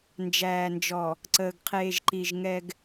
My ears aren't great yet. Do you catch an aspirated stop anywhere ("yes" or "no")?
yes